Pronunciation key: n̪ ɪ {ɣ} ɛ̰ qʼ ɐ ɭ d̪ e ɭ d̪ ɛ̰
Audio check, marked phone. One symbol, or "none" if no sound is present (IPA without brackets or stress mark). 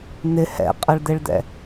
h